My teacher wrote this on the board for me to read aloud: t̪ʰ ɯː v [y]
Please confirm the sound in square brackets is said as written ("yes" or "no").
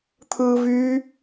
yes